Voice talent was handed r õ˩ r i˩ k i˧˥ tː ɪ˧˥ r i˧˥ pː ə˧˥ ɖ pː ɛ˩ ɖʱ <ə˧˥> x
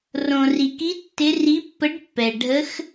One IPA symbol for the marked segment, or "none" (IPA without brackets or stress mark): ə˧˥